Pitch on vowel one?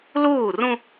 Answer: falling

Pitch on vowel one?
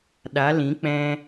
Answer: rising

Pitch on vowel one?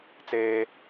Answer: high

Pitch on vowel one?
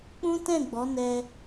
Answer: high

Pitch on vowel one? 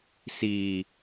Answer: low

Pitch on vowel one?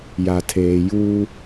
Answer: low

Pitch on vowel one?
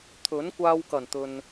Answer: rising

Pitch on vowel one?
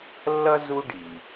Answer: high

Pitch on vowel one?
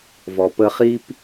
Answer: low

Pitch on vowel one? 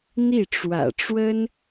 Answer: falling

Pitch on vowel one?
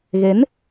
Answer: rising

